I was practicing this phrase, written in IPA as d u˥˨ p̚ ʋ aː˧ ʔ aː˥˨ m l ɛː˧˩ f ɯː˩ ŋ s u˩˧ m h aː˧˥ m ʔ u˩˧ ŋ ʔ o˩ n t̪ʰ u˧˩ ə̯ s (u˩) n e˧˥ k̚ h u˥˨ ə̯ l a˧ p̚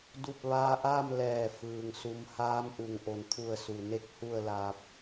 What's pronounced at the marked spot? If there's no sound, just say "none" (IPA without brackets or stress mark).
u˩